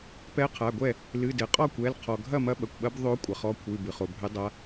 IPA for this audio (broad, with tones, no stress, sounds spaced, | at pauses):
p ɛ˧˥ qʰ a˩˧˩ ɡʷ ɛ˥˨ | l ɨ˩˧˩ d ɘ˩ qʼ ɔ˥˨ kʷ ɛ˩˧˩ l qʰ ɔ˩ ɡʱ ɐ˥˨ m ɐ˧˥ ɓ ɐ˩ kʷ ɓ ɐ˧˥ b ðˤ o˧˥ kʷʼ ɐ˩ χ ɔ˧˥ kʷʰ ɨ˩˧˩ b ɨ˩ χ o˩ bʱ ɘ˧˥ dˤ a˧˥